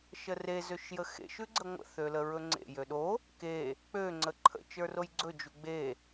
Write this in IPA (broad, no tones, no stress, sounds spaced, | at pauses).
ʃ ə r e z ø ʃ j ə x ḛ ʃ ʉ ɡ͡ǀ ə ŋʷ ə̰ θ ø l ə ɹ ɵ ŋ͡ǀ ḛ j ø ɗ o | k e | k͡p ø ŋ͡ǀ ə ǃʰ ə̰ t͡ʃ ə˞ r o j ɡ͡ǀ ɵ d͡ʒ u ɡ͡b e